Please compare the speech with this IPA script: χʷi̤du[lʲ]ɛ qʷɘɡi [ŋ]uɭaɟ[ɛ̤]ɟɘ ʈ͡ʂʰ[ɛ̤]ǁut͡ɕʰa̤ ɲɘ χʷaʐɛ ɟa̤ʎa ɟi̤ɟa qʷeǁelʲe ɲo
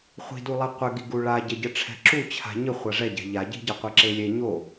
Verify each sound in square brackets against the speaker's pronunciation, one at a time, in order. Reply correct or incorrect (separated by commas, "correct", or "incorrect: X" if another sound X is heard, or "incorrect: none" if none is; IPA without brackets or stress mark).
incorrect: lˠ, incorrect: ɡ, incorrect: ɛ, correct